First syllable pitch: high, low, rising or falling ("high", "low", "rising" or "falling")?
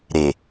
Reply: low